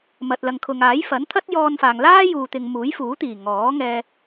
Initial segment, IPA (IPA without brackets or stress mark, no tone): m